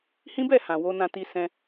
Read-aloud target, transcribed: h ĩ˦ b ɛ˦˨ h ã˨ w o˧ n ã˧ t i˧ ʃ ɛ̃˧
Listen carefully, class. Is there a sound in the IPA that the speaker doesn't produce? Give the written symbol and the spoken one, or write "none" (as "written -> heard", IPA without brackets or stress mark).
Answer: ʃ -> s